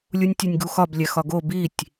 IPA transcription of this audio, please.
lʲ u nʲ tʲ e nʲ ɡ u x ɒ b lʲ æ x ɒ ɡ o b i tʲ

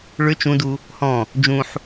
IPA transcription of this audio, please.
ɭ ʏ t͡ʃ ũ d u | h ɔ̃ | d͡ʒ ũ ħ

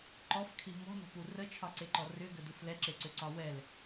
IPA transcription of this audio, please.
ǃ ɔ f kʰ i m ɔ̤ n ɔ̤ p u r ə t͡ʃʰ ɒ ǀ e ǃ ɔ r ʏ ɡ ə d u f l ɛ ǁ e ǀ ʏ ǀ ɒ w ɛ l

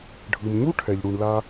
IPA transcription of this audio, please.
ɖʱ ɯ˨ m ɲ u˦ ʈʰ ɛ˨ ʎ ɽ u˨ ɳ l a˧

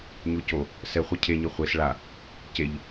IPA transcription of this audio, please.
ɲ o c o | s ɛ χʷ e cʰ e ɲ i χʷ e s ɭ a | c e ʎ

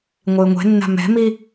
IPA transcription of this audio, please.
ŋʷ ɪː ŋʷ ɛ̤ nː a̤ m ɛ̤ m i

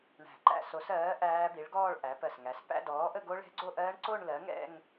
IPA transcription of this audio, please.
ɳ æ̤˧˩ ǃ æ̰˥˧ s o˨˥ s ɜː˨˥ ʔ æː˦˥ b i˨˥ ɭ ɡ ɔː˥˧ ɭ ʔ æ˨˥ p ɜ˧˩ s ŋ æ˨˥ s p æ̰˥˧ d ɔː˨˥ ʔ ə˥˧ ɡ o˦˥ ɭ ɛ̤˦˥ ɡ͡ǀ o˥˧ ʔ ɜː˦˥ ɳ ǀ o˥˧ ɳ l ɜ˨˥ ŋ ɛ̰˥˧ ŋ

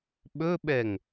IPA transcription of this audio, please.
ɓ ɵ ɓ ɛ ŋ

